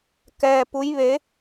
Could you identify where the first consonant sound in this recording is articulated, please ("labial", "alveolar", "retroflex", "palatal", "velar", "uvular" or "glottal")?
velar